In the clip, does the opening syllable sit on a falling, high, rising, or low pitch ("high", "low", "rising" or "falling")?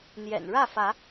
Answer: low